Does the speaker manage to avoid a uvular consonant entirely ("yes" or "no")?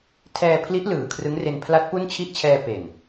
yes